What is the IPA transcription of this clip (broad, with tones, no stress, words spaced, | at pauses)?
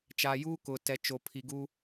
t͡ʃaː˨ juː˦kʊ˨tɛ˨ t͡ʃo˨pʰi˨ɡu˦